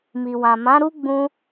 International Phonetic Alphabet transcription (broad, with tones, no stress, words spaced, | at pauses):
mi˨wã˨mã˨˦ ɾu˦ɡ͡bũ˧